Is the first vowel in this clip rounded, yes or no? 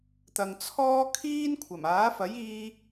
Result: no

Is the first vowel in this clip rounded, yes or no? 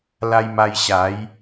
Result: no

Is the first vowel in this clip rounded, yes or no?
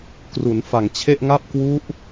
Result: yes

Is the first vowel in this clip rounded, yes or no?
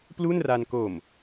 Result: yes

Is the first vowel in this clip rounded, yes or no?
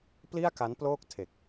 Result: no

